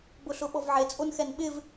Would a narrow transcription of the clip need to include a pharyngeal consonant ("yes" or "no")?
yes